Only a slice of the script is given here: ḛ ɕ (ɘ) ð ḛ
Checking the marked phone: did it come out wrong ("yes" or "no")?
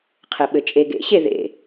yes